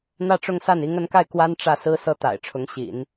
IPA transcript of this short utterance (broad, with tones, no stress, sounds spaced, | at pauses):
n̪ ä˥˧ ʈ͡ʂ ʊ˥˧ ŋ s a˥˩ n i˧˥ ŋ ə˧˥ n k a˥˩ ɪ̯ k w a˥ n ʈ͡ʂ ä˥˩ s ɹ̩˥ s ɤ˥ t̪ a̰˨˩ ɪ̯ ʈ͡ʂʰ ʊ˧˥ ŋ ɕ ḭ˨˩˦ n